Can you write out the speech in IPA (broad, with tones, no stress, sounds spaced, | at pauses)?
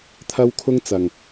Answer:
t̪ʰ ɐ˥ w kʰ ʊ˥ ŋ t͡s ɐ˨ ŋ